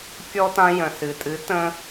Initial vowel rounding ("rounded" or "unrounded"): rounded